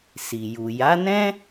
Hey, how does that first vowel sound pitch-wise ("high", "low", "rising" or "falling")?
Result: low